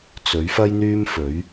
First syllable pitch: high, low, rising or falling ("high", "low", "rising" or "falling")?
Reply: rising